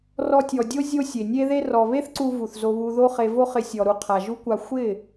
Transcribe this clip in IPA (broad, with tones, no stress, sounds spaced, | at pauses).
r ɔ˧ tʲ ɔ˨ dʲ o˦ zʲ o˦ sʲ e˨ nʲ e˦ ð e˦ r ɔ˨ β e˦ θ ǀ u˧ v u˨ θ z o˧ β u˧ ð o˦ χ e˧ v o˦ χ ɪ˧ sʲ ɔ˨ ɾ u˧ qʰ a˨ ʒ u˦ kʷ a˧ xʷ ɪ˦˨